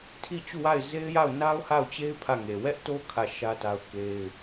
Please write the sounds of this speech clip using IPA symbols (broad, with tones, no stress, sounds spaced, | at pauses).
tʰ i˦˨ t͡ɕ u˦˨ w a˦˨ ɪ̯ z e˦ ɪ̯ j a˦˨ ʊ̯ n a˦ ʊ̯ h a˦˨ ʊ̯ t͡ɕ e˦ ɪ̯ pʰ ä˦˨ ŋ e˨ w ɛ˦ ʔ t o˦ kʰ ä˦˨ ʃ ä˦ t a˦ ʊ̯ k e˦ ɪ̯